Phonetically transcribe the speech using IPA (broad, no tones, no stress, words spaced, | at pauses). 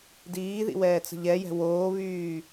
diːðḭwɛːt͡sə̤ ʎɛjɛ̤ woːβyː